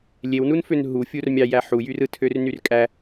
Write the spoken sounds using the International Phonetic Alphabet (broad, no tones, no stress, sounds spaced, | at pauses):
lʲ e w n u n f ø n ɦ u fʲ u r mʲ ɑ j æ ħ u j y r ɯ tʰ ø r n y r kʼ æ